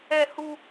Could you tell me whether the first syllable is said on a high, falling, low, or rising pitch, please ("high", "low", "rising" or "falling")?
high